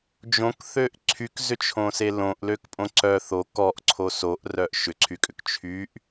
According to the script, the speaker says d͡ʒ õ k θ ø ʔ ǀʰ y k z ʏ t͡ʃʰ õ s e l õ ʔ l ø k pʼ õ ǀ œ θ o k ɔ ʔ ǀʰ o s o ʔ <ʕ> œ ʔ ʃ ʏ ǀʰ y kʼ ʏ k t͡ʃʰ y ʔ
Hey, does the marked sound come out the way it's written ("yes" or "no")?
no